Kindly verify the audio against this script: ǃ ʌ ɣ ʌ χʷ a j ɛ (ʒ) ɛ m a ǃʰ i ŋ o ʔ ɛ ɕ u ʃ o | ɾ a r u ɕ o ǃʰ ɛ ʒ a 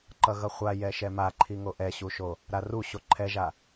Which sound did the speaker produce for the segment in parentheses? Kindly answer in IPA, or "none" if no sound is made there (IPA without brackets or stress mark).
ʃ